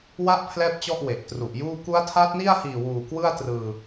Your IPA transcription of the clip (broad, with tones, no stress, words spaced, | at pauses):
wa˦˥ʔ pʰlɛː˥˩p̚t͡ɕɔ˥˩ʔ we˨˩ʔtru˨˩ʔjuː˥˩ ku˦˥a̯tʰa˦˥t̚ni˥˩a̯hiː˨˩ wuː˨˩kwɯ˥˩a̯ trɯː˧